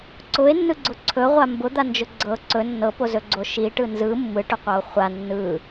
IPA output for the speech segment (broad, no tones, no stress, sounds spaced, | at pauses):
ǀ ʊ e̯ nː ɯ ɡ͡ǀ ʊ ǀʰ ɵ ʁʷ a m b ʊ d̪ a n d͡ʒ ʊ ɡ͡ǀ ɤ ǀ ɵ nː ɤ p o z ɵ ɡ͡ǀ o ʃ i ʈ ɯ n z ɯ mː ɯ ʈ ʊ qʷ ɤ o̯ χʷ a nː ɯ